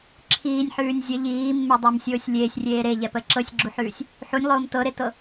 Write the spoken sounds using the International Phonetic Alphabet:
ǁʰiːnʲħʉːnʲ zʲə ʎiːmːedˤɛmsʲoːsʲ lʲeːsʲrʲeː ɾeʎɛpə ǁɤsʲɡ͡ǁuħʉːsʲ | ħunʲlˠoːm tɤɾetɤ

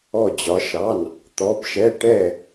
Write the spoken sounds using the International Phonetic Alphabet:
ɔ˧˩d͡ʑɒ˩˧ʃɑ˩˧˩n | t̪ɔ˩˧bʃɛ˩˧˩ ʈɛ˧˩

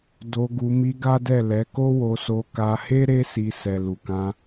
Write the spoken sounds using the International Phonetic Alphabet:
do˧ ɡu˧ mi˧ ɡa˦dɛ˦˨ lɛ˨˦ko˦wo˧ so˧ka˧he˦ ɾe˦si˧ sɛ˨lu˨kã˧

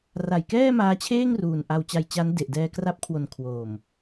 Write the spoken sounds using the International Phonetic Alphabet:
ra˨˩jkɛː˥˩maː˧t͡ɕʰeː˥˩ŋ ruː˨˩nʔa˧w t͡ɕa˧jt͡ɕa˦˥n de˨˩ʔ dɛː˧kra˦˥p̚kʰwo˨˩n kʰwoː˨˩m

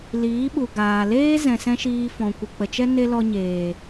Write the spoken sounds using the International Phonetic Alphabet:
liː˨˦ɓu˨ ɡaː˨leː˦ zɛ̃˨sɛ̃˦ʃiː˧ fɔ̃˨kʷɨ˨k͡pə˨t͡ʃɛ˦ ne˦lɔ˧ ɲeː˨

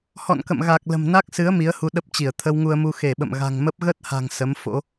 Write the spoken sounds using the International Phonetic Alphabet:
hɔ̰˧˨nkə̰˧˨mɣa˨˩k̚ lə̤˨˩mna˦˥k̚sɨ˨˦ə̯ mi˨˦ə̯hu˧ɗə˦˥p̚t͡ɕi˧˩ə̯ t̪ʰə˧wŋu˧ə̯mu˧ xe˧˩ɓə̰˧˨m ɣa̤˨˩ŋmə˦˥p̚ ɣə˦˥t̚ha̤˨˩ŋ sə˨˦mfo̰˧˥

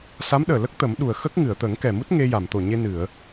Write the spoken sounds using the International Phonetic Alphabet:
sa˧˥mɗəː˨˩lə˦˥k̚ t̪ə˨˩˦mɗu˨˩ə̯ xə˦˥k̚ ŋɨ˨˩˨ə̯t̪ə˨˩˦ŋkɛ˨˩mu˦˥t̚ ŋe˧ja˨˩˨m t̪o˨˩ɲe˧ nɨ˨˩˨ə̯

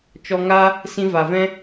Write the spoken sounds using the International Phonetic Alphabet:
t͡ʃɔ˧ŋa˦ | sĩ˧va˨vɛ̃˦

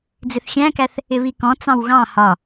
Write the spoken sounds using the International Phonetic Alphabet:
d͡zɪθxʲæ̃kæθ | ɪβikɔ̃ t͡sɑ̃wɣɑ̃ hɒ

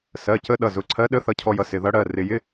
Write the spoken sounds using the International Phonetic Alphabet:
sɜ˩˧˩cə˧˥ ɗʌ˩˧˩zʊ˩˧˩ǀʰɜ˧˥ɗə˧˥˧ θʌ˧˥cʰɔ˧jʌ˧sɪ˩˧˩ ðʌ˧˥ɽɜ˩˧˩ rɪ˩˧˩jɪ˧˥˧

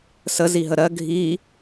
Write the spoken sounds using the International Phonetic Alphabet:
səziɦə ɾɜ ɡʱi

